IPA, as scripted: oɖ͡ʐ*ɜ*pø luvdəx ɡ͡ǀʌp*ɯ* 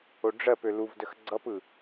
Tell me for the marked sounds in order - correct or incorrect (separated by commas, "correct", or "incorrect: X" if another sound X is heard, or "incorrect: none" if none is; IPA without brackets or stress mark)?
correct, correct